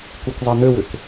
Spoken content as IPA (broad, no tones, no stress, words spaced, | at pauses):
kukzˤin̪øwʏk